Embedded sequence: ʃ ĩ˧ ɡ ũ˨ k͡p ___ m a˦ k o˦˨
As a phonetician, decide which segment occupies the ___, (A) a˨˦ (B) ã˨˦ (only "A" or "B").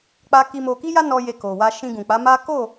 A